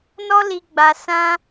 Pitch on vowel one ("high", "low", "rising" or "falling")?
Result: high